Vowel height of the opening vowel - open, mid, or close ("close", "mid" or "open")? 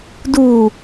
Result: close